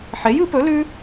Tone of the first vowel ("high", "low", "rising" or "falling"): rising